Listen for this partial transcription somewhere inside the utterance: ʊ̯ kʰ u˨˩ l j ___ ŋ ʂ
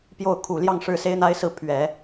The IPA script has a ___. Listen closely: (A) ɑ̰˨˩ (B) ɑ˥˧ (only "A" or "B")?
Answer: B